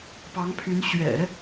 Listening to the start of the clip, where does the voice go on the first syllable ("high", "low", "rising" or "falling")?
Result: rising